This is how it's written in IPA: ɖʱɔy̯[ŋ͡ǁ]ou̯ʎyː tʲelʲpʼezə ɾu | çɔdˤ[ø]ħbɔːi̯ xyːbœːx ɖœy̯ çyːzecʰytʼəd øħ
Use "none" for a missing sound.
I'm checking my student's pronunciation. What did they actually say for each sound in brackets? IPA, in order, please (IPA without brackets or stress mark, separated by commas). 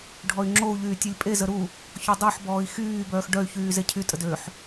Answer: ŋ͡ǁ, ø